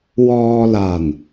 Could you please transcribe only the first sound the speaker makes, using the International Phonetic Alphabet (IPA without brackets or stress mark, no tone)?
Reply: w